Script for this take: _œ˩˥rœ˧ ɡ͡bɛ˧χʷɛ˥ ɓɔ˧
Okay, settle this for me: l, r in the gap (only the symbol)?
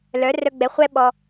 l